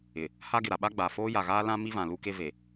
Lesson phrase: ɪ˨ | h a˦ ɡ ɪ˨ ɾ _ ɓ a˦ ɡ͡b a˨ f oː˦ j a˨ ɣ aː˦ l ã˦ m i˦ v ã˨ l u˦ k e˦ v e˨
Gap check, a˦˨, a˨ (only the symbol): a˨